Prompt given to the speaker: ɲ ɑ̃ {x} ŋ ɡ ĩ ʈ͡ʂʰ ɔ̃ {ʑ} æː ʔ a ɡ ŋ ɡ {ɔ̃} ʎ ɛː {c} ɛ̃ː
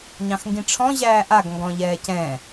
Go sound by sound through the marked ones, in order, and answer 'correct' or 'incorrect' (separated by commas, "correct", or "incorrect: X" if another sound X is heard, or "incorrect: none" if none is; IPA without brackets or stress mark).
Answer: correct, correct, correct, correct